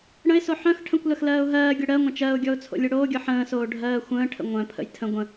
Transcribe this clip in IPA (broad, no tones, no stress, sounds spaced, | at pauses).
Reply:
ɽ ə̃ ɪ̯ s o ħ œ̃ x ʈʰ ə̃ kʷ l ɐ x l ɜː ʊ̯ ɦ ɜː ɡʲ œ ɽ ɜ ŋʷ ɐ̃ t͡ʃ ɜ ʊ̯ ɡʲ ɔ ʊ̯ t͡sʰ o̰ lʲ o ɽ oː ɡʲ ɔ ħ ə̃ː s oː ɖʱ ɜː xʷ ə̃ː ʈʰ ə̰ ŋʷ œ̃ pʰ ə̰ j tʰ ə̃ ɡʷ ə̃